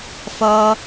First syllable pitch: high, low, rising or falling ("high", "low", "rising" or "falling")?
high